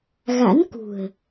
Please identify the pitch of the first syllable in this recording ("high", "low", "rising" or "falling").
rising